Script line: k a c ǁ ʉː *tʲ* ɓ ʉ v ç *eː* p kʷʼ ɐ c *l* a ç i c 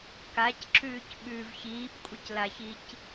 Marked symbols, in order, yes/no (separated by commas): no, no, yes